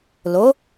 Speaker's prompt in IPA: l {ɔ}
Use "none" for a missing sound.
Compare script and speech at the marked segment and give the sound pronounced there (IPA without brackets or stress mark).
o